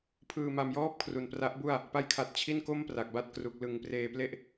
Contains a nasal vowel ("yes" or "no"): no